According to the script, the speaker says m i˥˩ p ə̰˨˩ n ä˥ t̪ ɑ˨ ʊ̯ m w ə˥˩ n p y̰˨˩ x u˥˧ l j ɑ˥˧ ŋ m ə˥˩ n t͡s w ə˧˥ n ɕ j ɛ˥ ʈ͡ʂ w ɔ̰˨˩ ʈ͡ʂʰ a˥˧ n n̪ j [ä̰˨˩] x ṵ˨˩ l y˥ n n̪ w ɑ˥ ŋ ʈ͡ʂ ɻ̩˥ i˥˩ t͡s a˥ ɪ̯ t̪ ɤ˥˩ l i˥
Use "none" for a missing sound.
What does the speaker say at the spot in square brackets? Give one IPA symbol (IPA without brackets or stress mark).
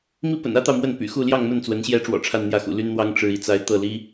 ä˥˩